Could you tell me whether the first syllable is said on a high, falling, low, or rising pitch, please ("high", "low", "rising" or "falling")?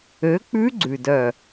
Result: rising